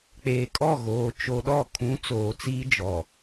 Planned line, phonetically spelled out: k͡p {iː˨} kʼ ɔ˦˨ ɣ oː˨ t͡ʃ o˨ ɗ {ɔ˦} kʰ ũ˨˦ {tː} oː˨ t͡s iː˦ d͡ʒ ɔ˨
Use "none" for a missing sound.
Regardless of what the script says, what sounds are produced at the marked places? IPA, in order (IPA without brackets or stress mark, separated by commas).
eː˨, ɔ˦˨, t͡s